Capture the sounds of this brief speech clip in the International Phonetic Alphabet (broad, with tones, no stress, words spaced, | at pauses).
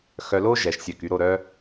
xœ˧lo˥ ʒɛ˩˧ʃsʲə˧˩ ky˧ɾo˥˧ɾœ˥